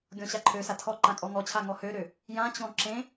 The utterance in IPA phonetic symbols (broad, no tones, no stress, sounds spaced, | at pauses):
ɡʲ ɔ̃ ɕ a ǃʰ ø s a tʰ ɔ ǃ ã kʼ ɔ ŋ ɔ t͡ɕʰ a ŋ ɔ h ø ɾ ø | j ã t͡ɕ ɔ̃ ǁ ẽ